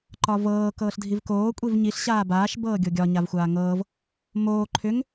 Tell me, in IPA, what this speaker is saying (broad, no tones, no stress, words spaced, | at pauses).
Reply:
ǃɒvɤː kɤːɬdʱivkoː kʷʼivɲiɬ ɕaːbaːʃ bɤːɡʲoɡʲɒ ɲavxʷaːŋɤːv | moː ǃʰʏŋ